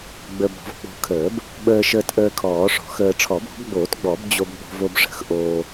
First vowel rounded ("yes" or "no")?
no